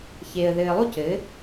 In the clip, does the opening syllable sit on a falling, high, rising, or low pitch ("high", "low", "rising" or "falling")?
low